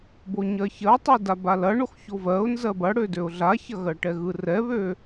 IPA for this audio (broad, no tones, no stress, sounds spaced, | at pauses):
b o ɲ ɜ ç ɜ tˤ ɯ d a b a l ɐ ɳ o x ç o v ɜ ʊ̯ n z ɜ b ɐ ɽ ø d ø ʊ̯ ɮ a ç ɐ ɣ ɜ ʈ ɛ ɣ ɯ r ɛ β ø